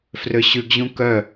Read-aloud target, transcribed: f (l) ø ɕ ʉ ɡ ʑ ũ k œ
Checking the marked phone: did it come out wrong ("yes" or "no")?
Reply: yes